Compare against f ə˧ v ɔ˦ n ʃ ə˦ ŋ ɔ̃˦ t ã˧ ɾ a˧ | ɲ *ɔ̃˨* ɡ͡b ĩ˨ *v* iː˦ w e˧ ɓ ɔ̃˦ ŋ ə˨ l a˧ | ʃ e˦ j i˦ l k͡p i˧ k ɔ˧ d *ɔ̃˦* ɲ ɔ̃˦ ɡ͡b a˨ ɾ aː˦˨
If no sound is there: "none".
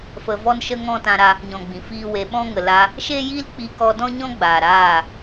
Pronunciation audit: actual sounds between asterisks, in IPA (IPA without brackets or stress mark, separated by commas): ɔ̃˨, f, ɔ̃˦